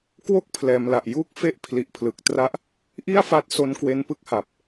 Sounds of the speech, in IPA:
kwo˥˩k̚pʰlɛː˩˦mla˨˩ʔjuː˥˩k̚ fe˥˩ʔpʰli˨˩ʔpʰlɯ˨˩k̚tra˥˩ʔ | ʔi˥˩a̯fa˦˥t̚so˧n kwe˧npɯ˥˩k̚ha˨˩p̚

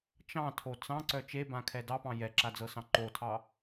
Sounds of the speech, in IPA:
t͡ʃɑ̃tʰo t͡sɑ̃ǀœ t͡ʃebãkʰɛ dɑpɑ̃ jɛǁad͡zɤsɑ̃ ǃotʰɑ

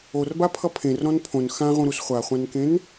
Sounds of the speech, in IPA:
orbapʰʌ pʰẽrɾɔ̃n pʰõn xãʁũɾus χʷaχʷãnkẽn

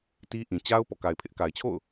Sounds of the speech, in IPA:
ti˦ʔĩ˨ t͡ɕa˦ʊ̯ pɔ̰˦˨ka˨ɪ̯pʰɪ˦ʔ ka˨ɪ̯t͡ɕʰo̰˦˨ʊ̯

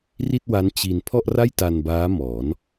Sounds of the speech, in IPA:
ri˥˩t̚wa˦˥n t͡ɕi˧n pʰɔ˥˩ʔra˥˩j ta˧nbaː˦˥ mɔː˩˦n

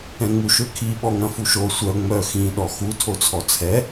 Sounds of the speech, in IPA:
ɛ̃ŋ͡muʃøkʰi ɓɔŋɐ̃fuʃo sʷœ ŋ͡mœ xĩ ɗɔxu tʰot͡sʰɔt͡sʰɛ

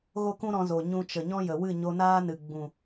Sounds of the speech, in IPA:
ɣo˦kũ˦ɾɔ̃˧zo˨ ɲũ˧t͡ʃə˨ ɲɔ̃˦jə˨ wɨ˦˨ɲo˧naː˦nɨ˨ ɡ͡bũ˨

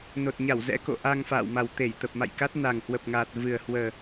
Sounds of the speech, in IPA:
no˨˩t̚ɲa˧˩wzɛ̰˧˥ ko̰˧˨ʔa˧ŋfa̰ː˧˨wma˨˩w t̪e˧˩jt̪ə˨˩p̚ma̰˧˨jka˦˥t̚ na˨˩ŋhwə˨˩p̚ŋaː˨˩t̚ vɨ˨˩ə̯hwəː˨˩

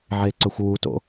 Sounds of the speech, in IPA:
ʕeǀɵxʷwuto̰

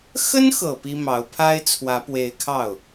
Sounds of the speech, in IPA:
xə˥nxɤ˨˩ pi˥mɑ˧˥ʊ̯ pʰa˥ɪ̯t͡sʰwä˧˥pwe˧˥ɪ̯kʰɑ˥˩ʊ̯

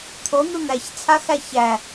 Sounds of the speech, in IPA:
t̪ʰon̪u n̪æçt͡sʰaxæ çæ

